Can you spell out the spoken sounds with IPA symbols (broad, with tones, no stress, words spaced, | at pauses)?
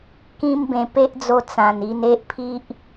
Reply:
kĩ˦mbẽ˧ pe˦ʔd͡zo˧ t͡sã˨˩ni˧n e˦ʔpʰi˦ʔ